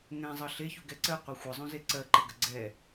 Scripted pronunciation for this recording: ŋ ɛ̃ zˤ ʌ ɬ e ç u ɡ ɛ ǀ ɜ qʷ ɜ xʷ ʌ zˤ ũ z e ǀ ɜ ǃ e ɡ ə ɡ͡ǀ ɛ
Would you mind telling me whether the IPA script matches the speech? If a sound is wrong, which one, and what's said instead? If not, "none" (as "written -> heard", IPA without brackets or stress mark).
none